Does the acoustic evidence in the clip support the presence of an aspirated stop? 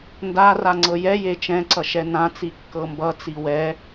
no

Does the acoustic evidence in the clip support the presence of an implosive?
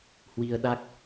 yes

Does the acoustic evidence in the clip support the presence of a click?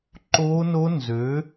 yes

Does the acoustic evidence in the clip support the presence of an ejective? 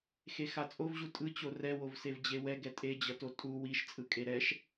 yes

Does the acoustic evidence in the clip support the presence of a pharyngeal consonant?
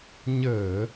no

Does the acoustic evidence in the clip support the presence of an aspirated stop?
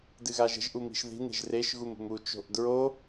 no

